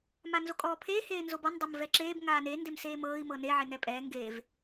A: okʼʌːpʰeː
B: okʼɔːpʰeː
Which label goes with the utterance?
B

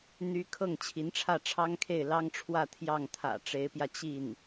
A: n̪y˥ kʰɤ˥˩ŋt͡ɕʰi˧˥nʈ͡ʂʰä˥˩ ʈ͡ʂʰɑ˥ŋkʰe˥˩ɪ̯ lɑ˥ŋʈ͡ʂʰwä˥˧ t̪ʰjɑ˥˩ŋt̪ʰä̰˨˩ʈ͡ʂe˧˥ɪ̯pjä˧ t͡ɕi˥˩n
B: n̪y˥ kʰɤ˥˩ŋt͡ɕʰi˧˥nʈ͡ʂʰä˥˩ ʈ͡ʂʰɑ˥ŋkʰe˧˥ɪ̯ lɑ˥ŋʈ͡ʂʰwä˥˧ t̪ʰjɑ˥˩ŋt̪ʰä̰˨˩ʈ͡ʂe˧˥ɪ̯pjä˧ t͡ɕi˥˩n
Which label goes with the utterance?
A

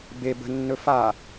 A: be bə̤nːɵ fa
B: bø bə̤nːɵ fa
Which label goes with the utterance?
A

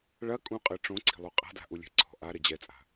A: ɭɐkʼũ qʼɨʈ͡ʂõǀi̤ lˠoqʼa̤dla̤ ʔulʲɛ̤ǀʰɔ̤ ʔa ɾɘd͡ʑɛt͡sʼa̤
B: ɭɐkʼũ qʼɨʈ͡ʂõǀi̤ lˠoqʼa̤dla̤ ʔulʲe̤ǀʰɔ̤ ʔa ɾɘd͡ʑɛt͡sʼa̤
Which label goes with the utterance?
A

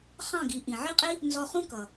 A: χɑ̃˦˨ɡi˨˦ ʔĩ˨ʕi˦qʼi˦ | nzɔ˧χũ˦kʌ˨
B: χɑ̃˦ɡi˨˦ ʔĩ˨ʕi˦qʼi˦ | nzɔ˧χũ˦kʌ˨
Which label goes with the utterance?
A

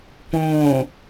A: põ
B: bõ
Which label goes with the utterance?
A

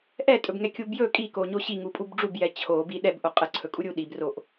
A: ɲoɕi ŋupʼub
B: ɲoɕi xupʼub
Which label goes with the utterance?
A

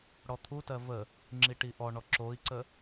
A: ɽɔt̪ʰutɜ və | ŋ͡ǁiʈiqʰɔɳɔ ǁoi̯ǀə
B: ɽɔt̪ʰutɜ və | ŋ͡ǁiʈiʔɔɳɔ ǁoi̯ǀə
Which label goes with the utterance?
B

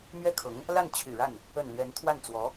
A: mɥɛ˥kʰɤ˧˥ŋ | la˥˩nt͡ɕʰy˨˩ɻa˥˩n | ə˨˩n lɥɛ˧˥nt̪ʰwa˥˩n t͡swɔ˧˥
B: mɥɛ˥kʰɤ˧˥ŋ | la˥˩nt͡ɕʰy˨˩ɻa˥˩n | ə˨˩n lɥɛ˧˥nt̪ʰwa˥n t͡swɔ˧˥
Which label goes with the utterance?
A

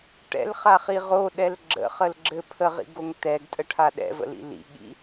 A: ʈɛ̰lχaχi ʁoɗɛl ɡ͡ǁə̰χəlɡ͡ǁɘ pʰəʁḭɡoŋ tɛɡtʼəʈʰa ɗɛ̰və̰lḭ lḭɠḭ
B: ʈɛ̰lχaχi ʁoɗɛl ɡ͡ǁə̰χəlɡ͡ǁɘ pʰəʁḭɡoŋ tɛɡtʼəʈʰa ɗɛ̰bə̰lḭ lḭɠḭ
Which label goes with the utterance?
A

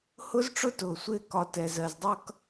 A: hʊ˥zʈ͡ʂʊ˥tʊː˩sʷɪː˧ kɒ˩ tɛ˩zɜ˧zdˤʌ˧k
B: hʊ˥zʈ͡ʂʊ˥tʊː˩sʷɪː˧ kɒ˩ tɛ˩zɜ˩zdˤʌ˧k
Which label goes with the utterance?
B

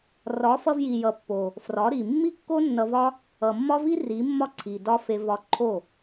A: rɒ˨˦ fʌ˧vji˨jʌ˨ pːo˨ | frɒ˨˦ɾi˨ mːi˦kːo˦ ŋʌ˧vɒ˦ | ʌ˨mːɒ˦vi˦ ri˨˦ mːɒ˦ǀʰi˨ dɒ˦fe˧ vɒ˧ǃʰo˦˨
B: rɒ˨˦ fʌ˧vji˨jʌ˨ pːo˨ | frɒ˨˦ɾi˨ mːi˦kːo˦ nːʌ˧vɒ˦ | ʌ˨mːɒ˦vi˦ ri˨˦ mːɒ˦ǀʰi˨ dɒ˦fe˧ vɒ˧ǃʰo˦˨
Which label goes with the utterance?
B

